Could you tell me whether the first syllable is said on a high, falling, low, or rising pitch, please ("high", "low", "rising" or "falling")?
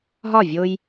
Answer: falling